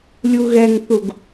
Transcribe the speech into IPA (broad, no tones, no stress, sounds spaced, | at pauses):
lʲ u ɣ ɛ ŋ θ u ɡ